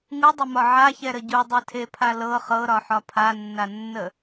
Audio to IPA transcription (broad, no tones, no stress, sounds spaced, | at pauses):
ŋ u dˤ e m ɒ ʕ a ç ɛ ɾ ə ɟ u dˤ e tʰ e pʰ a l ɤ χ ɤ ɾ ɒ ħ ɒ pʰ a nː a nː ə